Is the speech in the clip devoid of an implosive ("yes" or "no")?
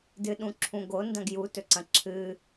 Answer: no